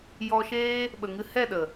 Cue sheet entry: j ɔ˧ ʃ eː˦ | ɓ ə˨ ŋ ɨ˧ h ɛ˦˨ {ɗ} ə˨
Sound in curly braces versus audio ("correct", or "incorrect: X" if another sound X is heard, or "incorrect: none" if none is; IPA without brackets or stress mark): correct